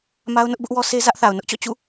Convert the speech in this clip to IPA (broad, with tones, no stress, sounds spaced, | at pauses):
m a˦ ʊ̯ n ʊ˦ ʔ b ʊ˦ ʔ w ɔ˦ s e˦ z ä˦ ʔ θ a˨ ʊ̯ n ʊ˦ ʔ t͡ɕ ɔ̰˦˨ t͡ɕ ṵ˦˨